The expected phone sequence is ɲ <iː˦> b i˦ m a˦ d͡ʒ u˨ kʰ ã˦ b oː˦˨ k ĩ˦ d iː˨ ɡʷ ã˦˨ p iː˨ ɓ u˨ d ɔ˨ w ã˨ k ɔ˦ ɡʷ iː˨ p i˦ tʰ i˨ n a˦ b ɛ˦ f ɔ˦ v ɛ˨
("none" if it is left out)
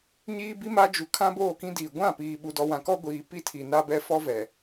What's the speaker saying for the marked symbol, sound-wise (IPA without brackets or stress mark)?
iː˦